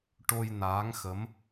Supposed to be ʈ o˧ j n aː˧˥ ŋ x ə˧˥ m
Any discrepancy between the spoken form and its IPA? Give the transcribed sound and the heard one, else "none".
none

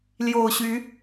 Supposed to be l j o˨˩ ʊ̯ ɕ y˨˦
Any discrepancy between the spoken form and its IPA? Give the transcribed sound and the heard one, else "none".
none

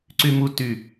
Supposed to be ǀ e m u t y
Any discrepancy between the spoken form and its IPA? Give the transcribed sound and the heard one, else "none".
e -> y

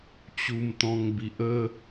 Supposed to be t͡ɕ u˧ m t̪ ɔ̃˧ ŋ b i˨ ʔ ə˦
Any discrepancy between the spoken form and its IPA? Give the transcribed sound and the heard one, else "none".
none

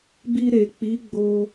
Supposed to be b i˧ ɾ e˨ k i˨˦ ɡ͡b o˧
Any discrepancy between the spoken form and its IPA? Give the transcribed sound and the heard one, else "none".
k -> k͡p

